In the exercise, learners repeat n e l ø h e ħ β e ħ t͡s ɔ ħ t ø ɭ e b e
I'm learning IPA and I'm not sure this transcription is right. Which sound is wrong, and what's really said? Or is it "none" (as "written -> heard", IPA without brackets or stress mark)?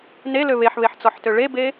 h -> β